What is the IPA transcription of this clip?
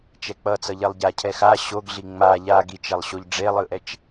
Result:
t͡ʃɛk͡pʌ t͡sʌʎelˠɟa cʰɛxa ɕoɡɮi ŋ͡ma ʎa ɡit͡ʃɛlˠɕoʎ ɖ͡ʐelˠɯʔɛt͡ʃ

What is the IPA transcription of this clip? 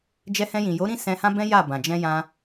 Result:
d͡ʒɛ˧hɛ̃˧jĩ˨ jo˨˦ɾĩ˦˨ sɛ̃˧hã˦bɛ̃˦ ja˦˨bã˨ d͡ʒɛ̃˧jã˧

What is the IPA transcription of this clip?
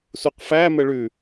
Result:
suqfæ məɭʉ

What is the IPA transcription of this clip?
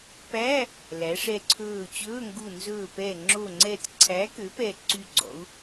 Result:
pæ˧˥˧ | læ˩˧ʂɛ˧˩ǀʰɵː˧˩t͡ɕɵː˧˥˧ ŋɡu˧˩nzɵː˧˩pɛ˧˩ ŋ͡ǁo˧˩ŋ͡ǀɛ˧˩t ǀʰæ˨˥kø˨˥pɛ˧˩ ǀy˧˩ɡ͡ǀɔ̰˩˧u̯

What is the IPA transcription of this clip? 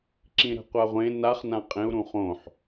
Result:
ǁĩɾɛ̤qʷaʁʷẽ naχ nãqʼẽu̯ ɾũχõħ

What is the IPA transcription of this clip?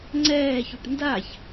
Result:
ŋ͡ǀɛːçuʈ ndaç

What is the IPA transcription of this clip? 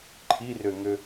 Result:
ǃʰirøŋø

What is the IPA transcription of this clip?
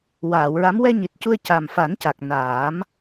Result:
waː˨˩˨wɹa˧˥m wɛ˧ɲi˨˩t̚cu˧ə̯ ca˨˩m fa˨˩˦nca˨˩k̚ naː˨˩˦m

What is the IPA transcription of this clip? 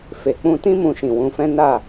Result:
fe˨k͡pũ˧tĩ˦ mũ˧ʃĩ˨wũ˨˦fɛ̃˦ na˦˨

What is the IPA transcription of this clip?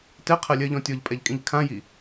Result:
tɛqʰɜlʲɜʎɔ̃ tʲɔʎpʼɛʎkʼĩʎ kʰãji

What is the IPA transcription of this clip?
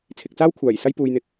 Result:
t͡sʰɪ˨k̚t͡saː˥wkʷʰaː˨˩j sɐ˥jpuː˨jn̪ɪ˨k̚

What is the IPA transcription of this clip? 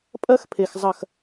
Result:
pʼɐ˦xpʰe˨x zˤɐ˦˨x

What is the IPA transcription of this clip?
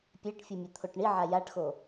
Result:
pʲɛʈfʲɯ mʲɛt̪ʰoʈɳiʕa jaʈxo

